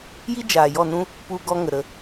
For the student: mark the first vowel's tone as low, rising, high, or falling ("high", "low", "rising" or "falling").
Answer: high